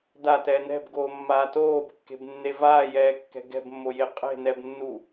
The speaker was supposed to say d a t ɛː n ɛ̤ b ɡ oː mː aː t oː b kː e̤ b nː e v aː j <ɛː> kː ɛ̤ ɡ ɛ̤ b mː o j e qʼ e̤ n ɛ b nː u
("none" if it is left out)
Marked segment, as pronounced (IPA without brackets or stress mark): ɛː